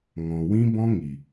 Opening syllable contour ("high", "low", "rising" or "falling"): low